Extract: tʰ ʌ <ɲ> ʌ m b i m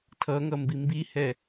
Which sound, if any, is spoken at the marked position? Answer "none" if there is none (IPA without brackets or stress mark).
ŋ